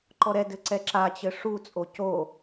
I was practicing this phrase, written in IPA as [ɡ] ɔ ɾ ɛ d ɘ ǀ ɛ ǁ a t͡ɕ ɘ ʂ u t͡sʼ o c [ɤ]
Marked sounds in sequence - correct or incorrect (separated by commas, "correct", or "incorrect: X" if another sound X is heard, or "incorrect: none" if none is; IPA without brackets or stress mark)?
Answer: incorrect: ǃ, incorrect: o